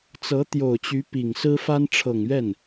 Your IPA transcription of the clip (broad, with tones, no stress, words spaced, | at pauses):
t͡sɤ˧˥t̪jo˨˩ʊ̯t͡ɕy˧˥ pi˨˩ŋ sɹ̩˥fa˥n ʈ͡ʂʰɤ˨˩ŋɥɛ˥˩n